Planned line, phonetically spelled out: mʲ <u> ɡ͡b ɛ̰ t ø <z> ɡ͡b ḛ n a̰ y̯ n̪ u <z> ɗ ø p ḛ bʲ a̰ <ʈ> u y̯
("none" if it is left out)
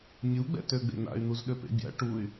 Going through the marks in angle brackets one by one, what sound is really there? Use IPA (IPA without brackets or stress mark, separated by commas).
u, none, z, ʈ